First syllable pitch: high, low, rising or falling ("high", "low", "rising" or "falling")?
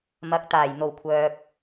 rising